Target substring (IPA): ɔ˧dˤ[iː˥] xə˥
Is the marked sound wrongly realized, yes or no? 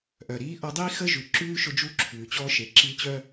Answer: no